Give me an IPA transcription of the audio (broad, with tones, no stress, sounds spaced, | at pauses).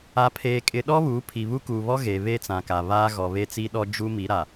a˨ pʰ eː˨ kʼ ɪ˨ ɗ ɔ˦ β uː˨˦ pʰ i˨ β u˦ k uː˨ β ɔ˦ ɣ e˨ β e˦ t͡s ã˨ k a˨ β aː˦ ɣ ɔ˨ β e˦ t͡s i˦ ɗ ɔ˦ d͡ʒ u˦ m i˨˦ ɾ a˨